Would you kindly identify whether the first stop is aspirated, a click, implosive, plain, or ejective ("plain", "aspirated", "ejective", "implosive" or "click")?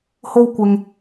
plain